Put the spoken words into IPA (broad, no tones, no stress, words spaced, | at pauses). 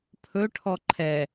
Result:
pʰɵ ʈʰɔǃʰɛ